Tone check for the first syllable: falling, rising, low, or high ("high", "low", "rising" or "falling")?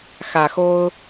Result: low